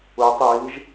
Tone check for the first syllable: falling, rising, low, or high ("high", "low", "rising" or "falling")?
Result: rising